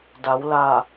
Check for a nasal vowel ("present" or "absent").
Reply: absent